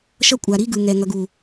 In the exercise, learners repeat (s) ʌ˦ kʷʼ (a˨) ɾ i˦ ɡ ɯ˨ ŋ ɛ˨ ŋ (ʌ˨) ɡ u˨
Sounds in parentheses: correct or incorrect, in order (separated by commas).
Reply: incorrect, correct, correct